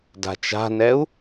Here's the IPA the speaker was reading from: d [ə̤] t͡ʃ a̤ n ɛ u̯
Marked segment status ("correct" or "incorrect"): incorrect